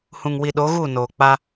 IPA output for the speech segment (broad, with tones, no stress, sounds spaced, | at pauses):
h ũ˨ ŋ w i˨ ɗ o˨˦ ɣ uː˦˨ n oː˨ k͡p a˦